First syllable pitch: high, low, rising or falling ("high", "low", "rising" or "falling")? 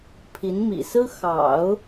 rising